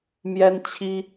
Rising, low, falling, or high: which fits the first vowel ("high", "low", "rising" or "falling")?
high